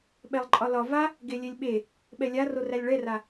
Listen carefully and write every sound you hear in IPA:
ɓ ɛ lˠ ǃʼ ɒ l ɒ v a | ɡ e lʲ e lʲ ɓ e | ɓ ɛ lʲ a r o r æ lʲ ɭ ɛ r a

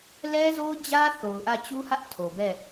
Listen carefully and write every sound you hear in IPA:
l ɛ˦ z o˦ ʊ̯ d͡ʑ ä˦ θ o˨ ʊ̯ ʔ ä˦˨ t͡ɕ u˦ h ä˦ ʔ tʰ o˨ b ɛ˦˨

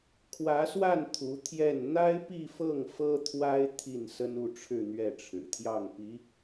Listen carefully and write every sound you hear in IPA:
kʰ w ä˧˥ s w a˥˩ n t̪ʰ u˧˥ t̪ʰ j ɛ˥˩ n n̪ a˥ ɪ̯ p i˥˧ f ɤ˥˩ ŋ f ɤ˥ t̪ʰ w a˥ ɪ̯ t̪ʰ i˥˩ n s ə˥ n u˥˧ ʈ͡ʂʰ ɻ̩˥˧ n̪ ɥ ɛ˥˩ ʈ͡ʂʰ ɻ̩˨˩ t̪ʰ j ɑ˥˩ ŋ p i˧˥

